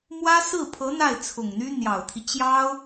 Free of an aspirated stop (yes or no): no